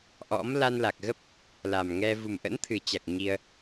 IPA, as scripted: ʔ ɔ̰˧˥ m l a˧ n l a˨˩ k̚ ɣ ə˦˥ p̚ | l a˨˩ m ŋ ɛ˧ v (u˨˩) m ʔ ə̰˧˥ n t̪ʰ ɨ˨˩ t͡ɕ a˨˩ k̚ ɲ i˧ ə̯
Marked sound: correct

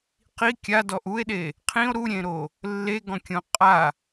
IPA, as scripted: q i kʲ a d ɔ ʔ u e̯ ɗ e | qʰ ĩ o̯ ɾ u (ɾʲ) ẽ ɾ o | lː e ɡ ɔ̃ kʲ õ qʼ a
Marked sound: correct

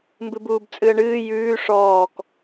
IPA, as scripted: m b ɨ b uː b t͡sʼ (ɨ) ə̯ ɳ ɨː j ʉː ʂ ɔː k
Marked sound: correct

